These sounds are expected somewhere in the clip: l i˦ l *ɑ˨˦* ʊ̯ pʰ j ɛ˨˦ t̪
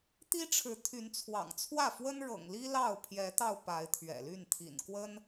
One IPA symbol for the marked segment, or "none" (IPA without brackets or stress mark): ɑ˥˨